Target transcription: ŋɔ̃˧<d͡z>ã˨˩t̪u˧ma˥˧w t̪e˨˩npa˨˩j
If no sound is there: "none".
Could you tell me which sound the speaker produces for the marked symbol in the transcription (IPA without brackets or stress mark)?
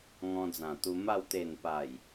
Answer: d͡z